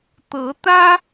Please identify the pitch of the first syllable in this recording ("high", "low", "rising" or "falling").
rising